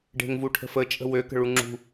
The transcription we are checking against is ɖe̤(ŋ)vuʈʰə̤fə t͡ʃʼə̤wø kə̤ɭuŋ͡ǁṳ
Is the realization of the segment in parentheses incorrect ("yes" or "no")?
no